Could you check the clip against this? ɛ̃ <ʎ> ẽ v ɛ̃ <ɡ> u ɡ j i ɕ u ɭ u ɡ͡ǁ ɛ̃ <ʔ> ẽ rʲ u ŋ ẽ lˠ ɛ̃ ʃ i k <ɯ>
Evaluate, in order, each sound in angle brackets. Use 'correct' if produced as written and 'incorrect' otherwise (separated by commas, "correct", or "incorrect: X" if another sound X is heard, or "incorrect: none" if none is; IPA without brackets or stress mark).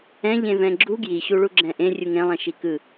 correct, incorrect: ɡ͡ǁ, correct, correct